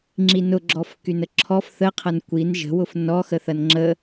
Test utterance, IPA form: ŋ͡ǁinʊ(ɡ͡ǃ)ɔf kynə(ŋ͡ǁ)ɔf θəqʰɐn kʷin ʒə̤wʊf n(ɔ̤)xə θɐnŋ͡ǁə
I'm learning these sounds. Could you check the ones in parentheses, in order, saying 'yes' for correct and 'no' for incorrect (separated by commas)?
no, no, no